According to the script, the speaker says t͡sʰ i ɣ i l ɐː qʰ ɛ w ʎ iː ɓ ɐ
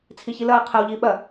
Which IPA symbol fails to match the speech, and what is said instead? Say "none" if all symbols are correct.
ɣ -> ç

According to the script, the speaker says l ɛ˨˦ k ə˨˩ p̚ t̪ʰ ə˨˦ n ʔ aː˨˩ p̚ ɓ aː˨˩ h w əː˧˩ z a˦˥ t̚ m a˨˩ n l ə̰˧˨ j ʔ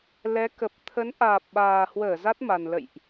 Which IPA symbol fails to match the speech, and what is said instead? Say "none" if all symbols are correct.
none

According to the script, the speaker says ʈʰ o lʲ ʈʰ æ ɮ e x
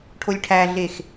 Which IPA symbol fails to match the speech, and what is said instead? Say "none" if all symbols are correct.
none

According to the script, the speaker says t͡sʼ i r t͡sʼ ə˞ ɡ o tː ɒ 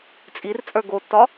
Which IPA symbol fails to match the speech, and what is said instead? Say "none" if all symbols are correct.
none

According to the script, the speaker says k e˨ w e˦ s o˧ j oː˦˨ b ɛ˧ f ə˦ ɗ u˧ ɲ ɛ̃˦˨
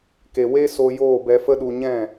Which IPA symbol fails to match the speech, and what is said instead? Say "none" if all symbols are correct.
none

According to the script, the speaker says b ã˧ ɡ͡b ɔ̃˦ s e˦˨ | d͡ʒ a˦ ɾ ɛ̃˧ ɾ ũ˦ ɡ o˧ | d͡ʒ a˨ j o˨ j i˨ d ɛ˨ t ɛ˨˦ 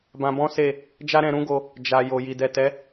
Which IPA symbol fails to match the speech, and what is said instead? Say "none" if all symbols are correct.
ɡ͡b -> b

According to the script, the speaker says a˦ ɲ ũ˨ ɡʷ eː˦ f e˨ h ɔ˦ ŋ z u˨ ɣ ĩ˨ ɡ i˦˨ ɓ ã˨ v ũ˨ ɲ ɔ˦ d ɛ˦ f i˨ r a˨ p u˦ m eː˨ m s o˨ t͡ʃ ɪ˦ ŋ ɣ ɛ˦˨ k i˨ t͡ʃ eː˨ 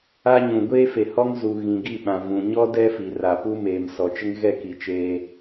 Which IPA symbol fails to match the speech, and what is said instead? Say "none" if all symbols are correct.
o˨ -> ɔ˨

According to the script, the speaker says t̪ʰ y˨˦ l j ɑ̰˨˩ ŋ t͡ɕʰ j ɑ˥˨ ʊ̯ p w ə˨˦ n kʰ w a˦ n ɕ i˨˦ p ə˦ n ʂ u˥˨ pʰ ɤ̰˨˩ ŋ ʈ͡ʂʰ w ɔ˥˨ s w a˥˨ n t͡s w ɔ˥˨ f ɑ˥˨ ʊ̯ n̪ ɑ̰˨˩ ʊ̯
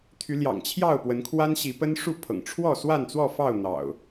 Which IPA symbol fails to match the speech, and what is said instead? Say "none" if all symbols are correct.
none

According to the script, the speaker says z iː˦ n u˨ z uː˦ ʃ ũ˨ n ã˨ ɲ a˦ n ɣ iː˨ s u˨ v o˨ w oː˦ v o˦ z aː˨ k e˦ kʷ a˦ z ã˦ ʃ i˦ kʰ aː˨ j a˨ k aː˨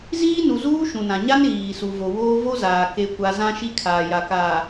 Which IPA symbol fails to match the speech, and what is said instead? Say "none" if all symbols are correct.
none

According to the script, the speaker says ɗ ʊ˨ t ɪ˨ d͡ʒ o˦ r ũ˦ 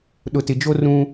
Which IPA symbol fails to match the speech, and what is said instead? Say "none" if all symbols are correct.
none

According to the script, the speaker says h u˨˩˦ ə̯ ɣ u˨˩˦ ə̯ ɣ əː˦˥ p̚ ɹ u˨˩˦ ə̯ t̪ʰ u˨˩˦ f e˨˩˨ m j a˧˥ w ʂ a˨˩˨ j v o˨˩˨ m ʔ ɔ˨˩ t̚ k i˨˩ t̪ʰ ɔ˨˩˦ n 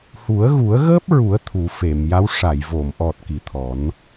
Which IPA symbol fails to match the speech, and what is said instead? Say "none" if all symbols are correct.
none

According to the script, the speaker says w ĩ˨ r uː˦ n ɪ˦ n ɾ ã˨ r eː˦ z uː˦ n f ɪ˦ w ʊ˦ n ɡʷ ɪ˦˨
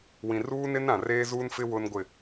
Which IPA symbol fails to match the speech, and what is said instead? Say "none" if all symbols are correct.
none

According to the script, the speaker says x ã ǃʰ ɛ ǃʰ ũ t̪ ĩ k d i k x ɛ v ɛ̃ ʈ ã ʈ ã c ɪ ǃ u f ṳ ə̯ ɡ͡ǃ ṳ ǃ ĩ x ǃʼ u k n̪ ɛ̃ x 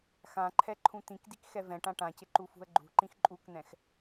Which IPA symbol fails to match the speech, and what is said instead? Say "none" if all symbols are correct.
none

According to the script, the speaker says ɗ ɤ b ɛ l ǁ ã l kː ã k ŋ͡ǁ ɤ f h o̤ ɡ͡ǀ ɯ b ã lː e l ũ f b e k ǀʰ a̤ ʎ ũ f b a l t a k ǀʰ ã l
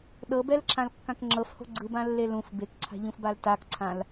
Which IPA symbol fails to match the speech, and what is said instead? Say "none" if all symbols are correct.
none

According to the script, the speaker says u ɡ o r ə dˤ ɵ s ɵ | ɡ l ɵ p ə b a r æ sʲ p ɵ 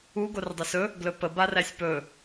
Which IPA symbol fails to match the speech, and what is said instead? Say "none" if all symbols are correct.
none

